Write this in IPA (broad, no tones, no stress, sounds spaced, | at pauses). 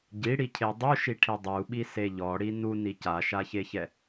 ɟ i ɽ i cʰ e dˤ u ʃ i ʈʰ i dˤ u ɓ i s e ʎ ɔ ɽ i n u n i c a ʃ a ç e ç ɛ